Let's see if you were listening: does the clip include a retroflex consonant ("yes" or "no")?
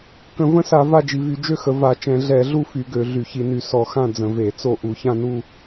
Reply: no